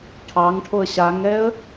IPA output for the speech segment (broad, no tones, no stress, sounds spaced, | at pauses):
ʈʰ ɑ ŋ ʈʰ o ə̯ ɕ a ŋ ɛ ə̯